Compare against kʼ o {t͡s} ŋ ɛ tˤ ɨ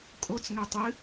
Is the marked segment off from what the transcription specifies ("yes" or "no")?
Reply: no